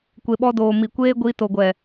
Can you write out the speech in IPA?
kʷe˨ɓɔ˧doː˨ mi˨kʷeː˦ɡʷi˧to˨ ɡʷɛ˨

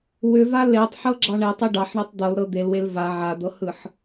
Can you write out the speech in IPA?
wʏva letˤħɤɡ͡ǁɑ ɳetˤe ɖɑħɳetˤ d̪ɤlɾɤ d̪elwel va ʕad̪ɤhɯħ

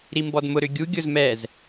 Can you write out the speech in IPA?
ɾimbɔdmʊ ɾʏɡʲu ɡʲʊzmɛz

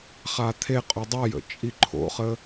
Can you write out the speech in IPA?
χat̪ʰe qʼodˤajə̰ t͡ʃʼiǃʰo̰χə

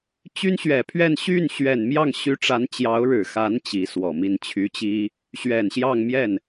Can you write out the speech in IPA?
t͡ɕy˥nɕɥɛ˨˩pʰɥɛ˥˧n ɕy˥˩n ɕɥɛ˨˩nmjɑ˥˩ŋɕy˧˥ʈ͡ʂa˧˥n t͡ɕjɑ˧˥ʊ̯ɻɻ̩˨˩xa˧˥n t͡ɕi˧˥swɔ˨˩mi˥˩n t͡ɕʰy˧˥t͡ɕi˥ | ɕɥɛ˨˩n ɕjɑ˥˧ŋmjɛ˥˩n

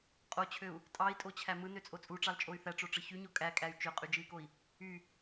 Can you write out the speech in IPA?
qʼot͡ɕʰøu̯ | tʼɑi̯tʼot͡ɕʰæ mɯnøt͡sʼo t͡sʼuʈ͡ʂɑlt͡ʃʼoy̯ θæʈ͡ʂoʈ͡ʂɯ çyɲo kʼækʼæy̯ t͡ʃøqʼyd͡ʒɯi̯koi̯ | y

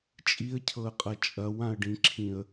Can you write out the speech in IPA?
t͡ʃʼiə̯cʰɤə̯qʼɐ t͡ʃʼɐwãə̯ɖĩǁʰĩə̯

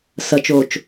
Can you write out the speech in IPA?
sɐt͡ʃoːt͡ʃ

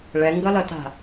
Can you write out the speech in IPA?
ɭɛŋɡʌlʌta̤

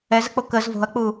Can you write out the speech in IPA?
ɛzək͡po kəz vo̤ɐ̯k͡pu

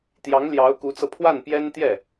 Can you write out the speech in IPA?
t̪jɑ˧˥ŋljɑ˧˥ʊ̯ku˧˥t͡sɤ˧ pʰwa˥˩npjɛ˥nt̪jɛ˥˩

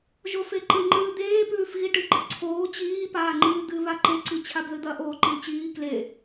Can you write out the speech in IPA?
ʒofeǃɨŋ͡ǃɨː d̪eːpʉːfɣi ʈɨɡ͡ǃɨǀʰoː t͡ɕiːpaːŋ͡ǃɨː d̪ɨ βaǃeǀi t͡ɕʰabðɨd̪ɐ ʔoːǃilt͡ɕiː kle

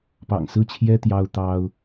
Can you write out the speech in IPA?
pɑ̰˨˩ŋsɹ̩˥˩t͡ɕʰjɛ˥ t̪jɑ˥ʊ̯t̪ɑ˥ʊ̯

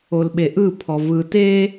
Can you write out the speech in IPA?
olɓeʔɯ pʰɔvɯ te

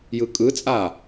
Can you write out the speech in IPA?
jɯkʼɯt͡sʼa

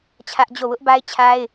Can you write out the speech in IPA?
t͡ɕʰä˦ʔd͡ʑo˦˨ wʊ˦ʔba˦ɪ̯t͡ɕʰa˦ɪ̯

